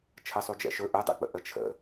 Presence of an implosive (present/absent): absent